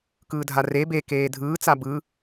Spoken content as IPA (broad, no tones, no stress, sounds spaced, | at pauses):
k ɯː dʱ a r e b e k eː dʱ ɯː t͡s a b ɯ